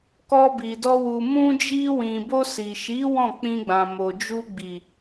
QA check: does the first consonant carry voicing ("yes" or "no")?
no